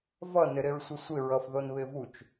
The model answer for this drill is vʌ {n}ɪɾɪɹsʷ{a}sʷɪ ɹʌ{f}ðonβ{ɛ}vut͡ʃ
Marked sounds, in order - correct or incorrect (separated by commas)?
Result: correct, incorrect, correct, incorrect